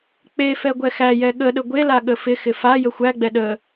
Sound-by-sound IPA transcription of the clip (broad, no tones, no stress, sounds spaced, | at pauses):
k͡p e f ɛ ɡʷ ɛ x æ j ɛ ɠ ə ɗ ə ɡʷ e l a ɠ ə f ɪ x ɪ f a j ə xʷ æ ɡ͡b ɛ ɗ ə